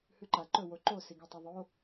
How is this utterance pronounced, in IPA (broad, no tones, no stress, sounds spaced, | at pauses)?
h ʉ ǃ a ǃ ɵ w o ǃ o s i ɡ e tˤ a ðˤ o